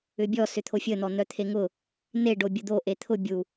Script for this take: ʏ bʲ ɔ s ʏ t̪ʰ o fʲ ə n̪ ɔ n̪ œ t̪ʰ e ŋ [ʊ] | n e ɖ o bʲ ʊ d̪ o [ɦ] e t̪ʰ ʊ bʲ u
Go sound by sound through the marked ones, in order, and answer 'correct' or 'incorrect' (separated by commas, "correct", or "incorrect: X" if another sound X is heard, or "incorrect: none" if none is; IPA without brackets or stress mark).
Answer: correct, incorrect: ʔ